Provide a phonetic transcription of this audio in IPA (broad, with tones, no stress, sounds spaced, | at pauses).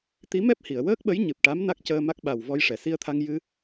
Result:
t̪ i˧˥ m ɛ˦˥ p̚ h i˨˩˨ ə̯ w əː˦˥ k̚ ɓ ə˧˥ j ɲ ɨ˨˩ p̚ ʈ a˧˥ m n a˦˥ k̚ c əː˧ m a˦˥ k̚ ɓ a˨˩ w v ɔ˧ j ʂ ɛ˨˩˨ s i˧ ə̯ t̪ʰ a˧ ŋ j ɨ˧